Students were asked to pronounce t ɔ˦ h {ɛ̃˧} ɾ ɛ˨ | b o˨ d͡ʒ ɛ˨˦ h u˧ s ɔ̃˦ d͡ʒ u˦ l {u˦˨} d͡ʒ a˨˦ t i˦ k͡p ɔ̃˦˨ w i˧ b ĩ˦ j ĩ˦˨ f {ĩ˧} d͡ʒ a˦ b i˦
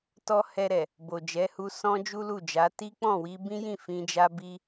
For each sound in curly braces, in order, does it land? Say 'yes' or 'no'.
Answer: no, yes, yes

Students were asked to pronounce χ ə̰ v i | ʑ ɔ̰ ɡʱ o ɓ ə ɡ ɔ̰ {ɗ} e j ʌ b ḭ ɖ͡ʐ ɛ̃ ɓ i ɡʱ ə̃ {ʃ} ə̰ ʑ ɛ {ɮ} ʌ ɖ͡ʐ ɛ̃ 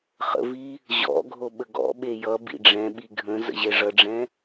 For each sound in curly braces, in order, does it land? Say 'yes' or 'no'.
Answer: no, no, no

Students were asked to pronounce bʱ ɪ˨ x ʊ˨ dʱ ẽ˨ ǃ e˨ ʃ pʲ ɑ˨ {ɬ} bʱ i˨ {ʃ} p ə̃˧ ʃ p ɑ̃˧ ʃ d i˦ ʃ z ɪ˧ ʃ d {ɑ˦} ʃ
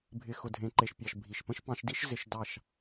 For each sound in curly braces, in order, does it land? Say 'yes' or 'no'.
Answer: no, yes, no

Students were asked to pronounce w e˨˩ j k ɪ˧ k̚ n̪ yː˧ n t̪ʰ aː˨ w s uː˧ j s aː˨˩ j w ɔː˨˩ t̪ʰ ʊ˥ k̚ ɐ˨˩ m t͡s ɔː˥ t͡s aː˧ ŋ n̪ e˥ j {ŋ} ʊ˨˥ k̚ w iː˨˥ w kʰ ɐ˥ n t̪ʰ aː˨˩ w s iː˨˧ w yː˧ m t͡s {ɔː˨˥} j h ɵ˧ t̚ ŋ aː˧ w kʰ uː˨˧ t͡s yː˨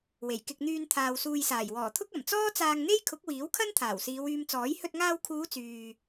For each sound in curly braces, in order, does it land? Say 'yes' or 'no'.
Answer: no, yes

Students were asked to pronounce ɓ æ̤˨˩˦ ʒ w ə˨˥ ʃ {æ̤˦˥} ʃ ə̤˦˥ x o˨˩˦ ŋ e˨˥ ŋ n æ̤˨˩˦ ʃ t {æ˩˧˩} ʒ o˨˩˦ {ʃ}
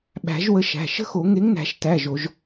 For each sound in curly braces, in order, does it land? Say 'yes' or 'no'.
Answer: no, yes, no

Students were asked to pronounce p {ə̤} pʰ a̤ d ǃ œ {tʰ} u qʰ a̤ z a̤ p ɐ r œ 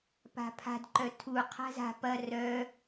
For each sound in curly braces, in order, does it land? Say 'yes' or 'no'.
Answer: no, yes

